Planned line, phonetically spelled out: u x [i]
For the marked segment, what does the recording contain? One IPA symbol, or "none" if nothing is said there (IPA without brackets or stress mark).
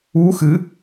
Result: ɨ